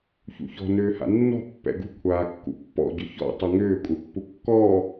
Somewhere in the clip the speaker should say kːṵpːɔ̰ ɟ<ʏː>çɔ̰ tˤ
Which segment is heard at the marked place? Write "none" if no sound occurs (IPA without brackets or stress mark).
ʏ